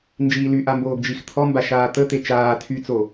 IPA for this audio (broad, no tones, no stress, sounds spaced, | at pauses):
n d͡ʒ iː l y ʔ a m b oː ɡ d͡ʒ i x t̪ʰ ɔ m b a ʃ aː t̪ ə t̪ e t͡ʃ aː tʰ y t͡s o